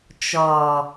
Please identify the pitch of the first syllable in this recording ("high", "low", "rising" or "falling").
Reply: low